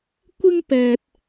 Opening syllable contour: high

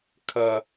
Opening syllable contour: high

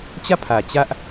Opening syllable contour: falling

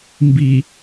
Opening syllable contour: low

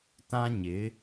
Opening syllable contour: high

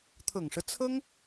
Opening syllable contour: low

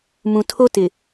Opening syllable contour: low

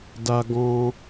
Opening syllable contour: high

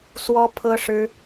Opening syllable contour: high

